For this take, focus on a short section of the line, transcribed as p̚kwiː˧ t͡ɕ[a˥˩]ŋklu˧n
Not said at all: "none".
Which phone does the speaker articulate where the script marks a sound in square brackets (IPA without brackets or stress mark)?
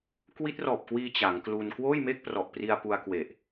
a˩˦